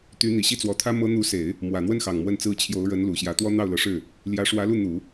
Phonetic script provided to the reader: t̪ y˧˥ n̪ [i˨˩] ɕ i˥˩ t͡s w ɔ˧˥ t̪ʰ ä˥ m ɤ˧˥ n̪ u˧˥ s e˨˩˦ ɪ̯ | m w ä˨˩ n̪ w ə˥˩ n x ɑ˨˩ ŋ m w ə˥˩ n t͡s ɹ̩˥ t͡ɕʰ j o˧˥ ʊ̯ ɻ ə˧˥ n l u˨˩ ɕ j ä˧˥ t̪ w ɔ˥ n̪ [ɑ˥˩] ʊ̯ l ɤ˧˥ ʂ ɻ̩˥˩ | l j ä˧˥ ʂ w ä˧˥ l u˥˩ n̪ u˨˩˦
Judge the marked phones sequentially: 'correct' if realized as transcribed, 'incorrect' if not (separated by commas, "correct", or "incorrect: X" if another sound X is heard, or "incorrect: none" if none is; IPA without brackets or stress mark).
correct, correct